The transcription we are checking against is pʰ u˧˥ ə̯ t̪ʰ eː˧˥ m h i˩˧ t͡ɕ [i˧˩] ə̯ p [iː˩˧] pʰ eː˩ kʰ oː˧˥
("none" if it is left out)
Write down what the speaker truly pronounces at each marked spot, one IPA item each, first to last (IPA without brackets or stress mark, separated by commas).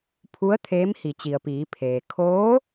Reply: i˩, iː˩˧